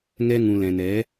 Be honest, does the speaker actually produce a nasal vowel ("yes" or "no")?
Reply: yes